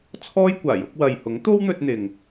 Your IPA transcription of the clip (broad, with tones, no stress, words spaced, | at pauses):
t͡sʰɔː˥jkʷaː˨˩jʊ˨˥k̚ wɐ˨jhʊ˨˥ŋt̪o˥wn̪ɵ˧t̚ n̪ɪ˨ŋ